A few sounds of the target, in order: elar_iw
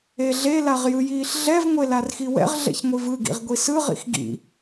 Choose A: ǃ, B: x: B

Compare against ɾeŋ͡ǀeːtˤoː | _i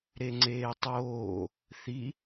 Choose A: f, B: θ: B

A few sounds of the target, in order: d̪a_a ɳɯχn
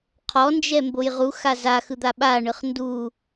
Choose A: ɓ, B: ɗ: A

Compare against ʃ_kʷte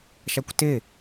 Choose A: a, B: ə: A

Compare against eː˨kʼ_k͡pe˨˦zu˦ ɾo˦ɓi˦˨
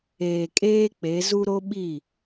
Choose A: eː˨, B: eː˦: B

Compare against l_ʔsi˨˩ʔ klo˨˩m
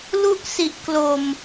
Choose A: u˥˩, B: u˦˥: B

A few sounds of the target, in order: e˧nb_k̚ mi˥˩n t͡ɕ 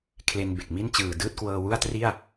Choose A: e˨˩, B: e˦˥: A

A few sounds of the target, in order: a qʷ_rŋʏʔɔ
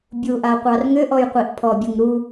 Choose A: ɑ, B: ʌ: A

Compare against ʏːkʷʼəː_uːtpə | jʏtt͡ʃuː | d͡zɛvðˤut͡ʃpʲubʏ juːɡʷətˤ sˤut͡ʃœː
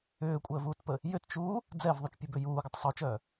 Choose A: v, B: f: A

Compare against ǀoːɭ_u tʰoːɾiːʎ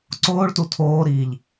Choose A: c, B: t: B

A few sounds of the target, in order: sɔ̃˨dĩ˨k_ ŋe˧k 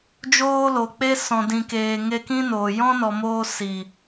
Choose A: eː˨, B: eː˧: A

